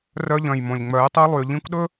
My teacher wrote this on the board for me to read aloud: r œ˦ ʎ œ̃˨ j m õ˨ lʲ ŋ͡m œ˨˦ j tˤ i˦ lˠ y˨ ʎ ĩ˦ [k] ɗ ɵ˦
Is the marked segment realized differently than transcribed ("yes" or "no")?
yes